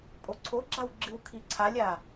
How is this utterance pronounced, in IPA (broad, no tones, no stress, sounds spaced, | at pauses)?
pʼ o ǀʰ o ɡ͡ǁ a w ɡ͡ǁ ɨ w kʰ i ǀʰ a lʲ a